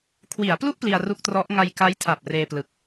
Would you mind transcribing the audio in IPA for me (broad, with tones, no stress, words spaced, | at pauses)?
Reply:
kʰwi˩˦a̯plu˥˩ʔ pli˧a̯ru˥˩k̚trɔ˦˥ʔ ŋa˧jka˦˥jtʰa˨˩p̚ reː˧plɯ˨˩k̚